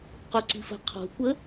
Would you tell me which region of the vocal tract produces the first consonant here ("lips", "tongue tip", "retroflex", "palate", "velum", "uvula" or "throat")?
uvula